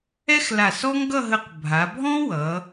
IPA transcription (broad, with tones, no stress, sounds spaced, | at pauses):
ɛ˥ x l a˧˩ s ɔ˥ ŋ ɡ ʌ˥˧ ɦ ə˧ q bʱ a˩˧ bʱ ɔ̃˥ w ʌ˩˧